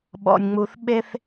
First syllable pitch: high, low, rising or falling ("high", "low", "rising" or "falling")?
low